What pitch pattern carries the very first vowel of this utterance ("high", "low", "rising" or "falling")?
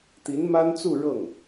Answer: rising